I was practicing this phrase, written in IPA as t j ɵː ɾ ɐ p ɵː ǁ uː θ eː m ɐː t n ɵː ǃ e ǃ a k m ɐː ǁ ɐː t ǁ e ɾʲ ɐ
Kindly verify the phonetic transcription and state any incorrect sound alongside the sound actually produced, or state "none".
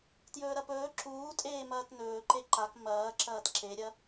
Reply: θ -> tʼ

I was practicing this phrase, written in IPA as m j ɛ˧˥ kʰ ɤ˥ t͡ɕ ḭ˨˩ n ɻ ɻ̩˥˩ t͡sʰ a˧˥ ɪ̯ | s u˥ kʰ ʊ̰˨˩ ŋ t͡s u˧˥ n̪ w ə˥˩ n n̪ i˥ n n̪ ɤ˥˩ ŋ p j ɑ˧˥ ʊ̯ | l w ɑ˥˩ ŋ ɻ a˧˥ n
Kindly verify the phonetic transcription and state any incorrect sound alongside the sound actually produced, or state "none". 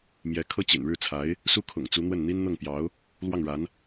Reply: none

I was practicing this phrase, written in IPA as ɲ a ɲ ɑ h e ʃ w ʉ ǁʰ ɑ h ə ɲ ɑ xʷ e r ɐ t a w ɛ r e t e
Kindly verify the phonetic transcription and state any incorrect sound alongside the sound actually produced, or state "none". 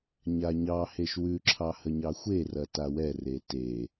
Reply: none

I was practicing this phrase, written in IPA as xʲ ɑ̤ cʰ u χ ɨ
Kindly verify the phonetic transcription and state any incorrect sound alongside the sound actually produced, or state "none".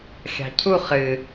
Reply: none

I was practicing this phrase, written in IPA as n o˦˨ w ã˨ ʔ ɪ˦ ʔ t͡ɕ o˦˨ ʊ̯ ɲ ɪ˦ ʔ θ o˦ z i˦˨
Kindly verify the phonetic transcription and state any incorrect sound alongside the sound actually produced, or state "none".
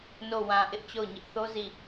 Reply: none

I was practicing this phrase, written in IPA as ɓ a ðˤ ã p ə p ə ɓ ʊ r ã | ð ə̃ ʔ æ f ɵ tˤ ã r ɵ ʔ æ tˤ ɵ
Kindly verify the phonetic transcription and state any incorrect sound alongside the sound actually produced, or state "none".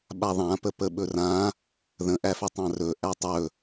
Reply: ʊ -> ɵ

